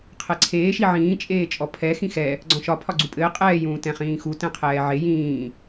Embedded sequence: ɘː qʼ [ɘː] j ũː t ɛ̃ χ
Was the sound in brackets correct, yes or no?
no